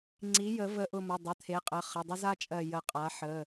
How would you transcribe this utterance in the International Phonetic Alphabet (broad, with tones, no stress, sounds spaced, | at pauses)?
ŋ͡ǀ i˩˥ j ə˨˩˦ v ə˧˩ ʔ ʊ˧˩ m ʊ˩˧˩ dˤ ə˩˧˩ t̪ʰ e˩˥ qʼ ə˩˧˩ χ ə˩˧˩ dˤ ʊ˦ z a˦ t͡ʃʼ ɜ˧˩ j ə˨˩˦ qʼ a˩˥ ħ ə˩˧˩